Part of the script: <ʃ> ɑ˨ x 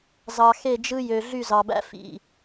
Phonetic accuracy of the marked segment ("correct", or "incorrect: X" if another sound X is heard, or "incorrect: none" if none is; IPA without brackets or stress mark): incorrect: z